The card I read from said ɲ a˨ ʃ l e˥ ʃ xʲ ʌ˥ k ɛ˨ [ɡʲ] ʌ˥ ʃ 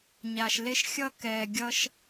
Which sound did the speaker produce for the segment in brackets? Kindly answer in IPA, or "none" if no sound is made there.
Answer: ɡʲ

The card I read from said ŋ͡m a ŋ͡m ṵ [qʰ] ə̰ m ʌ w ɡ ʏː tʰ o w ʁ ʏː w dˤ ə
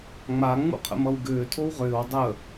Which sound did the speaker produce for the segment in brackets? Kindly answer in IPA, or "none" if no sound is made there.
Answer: qʰ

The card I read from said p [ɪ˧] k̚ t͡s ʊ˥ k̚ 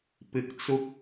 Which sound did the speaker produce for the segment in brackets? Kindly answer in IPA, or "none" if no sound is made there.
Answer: ɪ˧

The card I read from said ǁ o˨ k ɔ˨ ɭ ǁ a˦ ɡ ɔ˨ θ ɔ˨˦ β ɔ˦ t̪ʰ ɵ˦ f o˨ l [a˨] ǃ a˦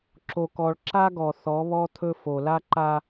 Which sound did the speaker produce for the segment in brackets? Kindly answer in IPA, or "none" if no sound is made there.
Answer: a˦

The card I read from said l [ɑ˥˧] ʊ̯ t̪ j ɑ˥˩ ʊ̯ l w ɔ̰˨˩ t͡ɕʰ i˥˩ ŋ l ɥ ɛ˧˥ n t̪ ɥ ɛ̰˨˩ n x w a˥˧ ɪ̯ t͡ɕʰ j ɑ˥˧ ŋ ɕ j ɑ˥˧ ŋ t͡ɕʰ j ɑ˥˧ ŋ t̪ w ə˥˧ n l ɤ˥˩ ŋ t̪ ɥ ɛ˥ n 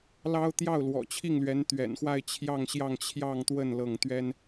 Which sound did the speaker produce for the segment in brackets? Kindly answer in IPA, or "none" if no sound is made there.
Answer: ɑ˥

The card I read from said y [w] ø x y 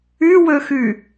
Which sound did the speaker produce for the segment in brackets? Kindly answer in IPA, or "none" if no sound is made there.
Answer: w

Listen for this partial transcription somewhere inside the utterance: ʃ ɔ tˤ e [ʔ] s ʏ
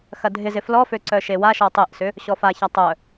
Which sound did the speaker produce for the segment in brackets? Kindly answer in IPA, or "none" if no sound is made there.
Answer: ʔ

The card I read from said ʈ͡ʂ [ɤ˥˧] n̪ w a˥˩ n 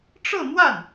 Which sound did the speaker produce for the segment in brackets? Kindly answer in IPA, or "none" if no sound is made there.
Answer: ɤ˥˧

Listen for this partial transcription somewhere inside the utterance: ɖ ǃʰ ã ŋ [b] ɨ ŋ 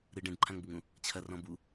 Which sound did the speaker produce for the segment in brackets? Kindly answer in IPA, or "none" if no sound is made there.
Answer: b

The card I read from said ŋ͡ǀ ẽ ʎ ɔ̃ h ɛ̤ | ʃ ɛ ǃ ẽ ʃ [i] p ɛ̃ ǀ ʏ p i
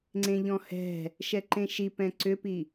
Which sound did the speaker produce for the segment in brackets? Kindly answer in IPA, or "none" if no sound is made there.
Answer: i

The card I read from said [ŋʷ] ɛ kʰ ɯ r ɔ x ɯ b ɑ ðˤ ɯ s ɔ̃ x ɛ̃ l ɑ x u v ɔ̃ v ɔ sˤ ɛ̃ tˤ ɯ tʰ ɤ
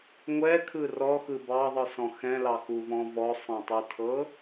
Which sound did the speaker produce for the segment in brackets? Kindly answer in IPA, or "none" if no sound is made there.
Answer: ŋʷ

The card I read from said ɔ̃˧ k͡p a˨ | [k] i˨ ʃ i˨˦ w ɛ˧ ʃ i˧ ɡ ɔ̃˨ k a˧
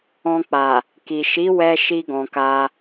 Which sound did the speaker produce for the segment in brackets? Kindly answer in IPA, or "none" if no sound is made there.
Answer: k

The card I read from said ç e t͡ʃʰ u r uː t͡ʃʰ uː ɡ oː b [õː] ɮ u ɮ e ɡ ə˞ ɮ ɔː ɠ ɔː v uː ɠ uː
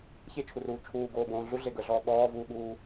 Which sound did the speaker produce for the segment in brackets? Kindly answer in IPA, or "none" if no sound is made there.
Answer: õː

